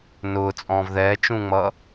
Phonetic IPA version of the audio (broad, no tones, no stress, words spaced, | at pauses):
nʊːt͡sʼɔ̃ːv ðɛːt͡ʃũŋ͡mʌ